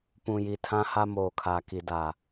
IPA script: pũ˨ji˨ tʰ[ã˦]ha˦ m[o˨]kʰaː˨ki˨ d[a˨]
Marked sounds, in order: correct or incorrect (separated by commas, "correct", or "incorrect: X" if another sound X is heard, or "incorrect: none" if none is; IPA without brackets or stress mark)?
correct, incorrect: oː˨, correct